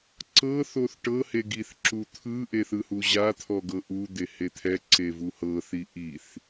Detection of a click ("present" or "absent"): present